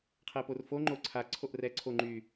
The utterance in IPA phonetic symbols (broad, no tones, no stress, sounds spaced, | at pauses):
qʰ ɛ p o r f o ŋ͡ǃ o ǀʰ a ǀʰ o ʔ r ɛː ǀʰ o ŋ͡ǃ y